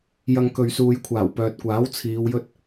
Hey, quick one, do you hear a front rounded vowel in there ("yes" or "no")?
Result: yes